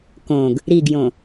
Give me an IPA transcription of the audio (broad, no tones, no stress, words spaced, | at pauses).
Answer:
kõɡ | ɾiɡjõ